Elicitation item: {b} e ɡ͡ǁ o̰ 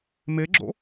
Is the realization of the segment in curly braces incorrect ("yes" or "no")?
yes